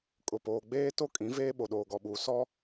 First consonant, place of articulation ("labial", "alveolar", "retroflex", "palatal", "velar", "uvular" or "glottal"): velar